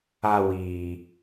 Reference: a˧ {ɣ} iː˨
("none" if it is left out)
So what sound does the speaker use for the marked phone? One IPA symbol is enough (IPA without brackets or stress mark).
w